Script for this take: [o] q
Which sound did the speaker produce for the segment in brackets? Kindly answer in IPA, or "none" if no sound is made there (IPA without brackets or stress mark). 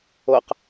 o